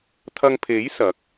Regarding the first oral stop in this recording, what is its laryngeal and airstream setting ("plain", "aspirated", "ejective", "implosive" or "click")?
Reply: aspirated